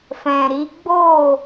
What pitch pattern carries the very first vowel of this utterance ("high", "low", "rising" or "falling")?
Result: low